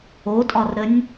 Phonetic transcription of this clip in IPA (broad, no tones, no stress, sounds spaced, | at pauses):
o tʼ ɒ r ɾ ə nʲ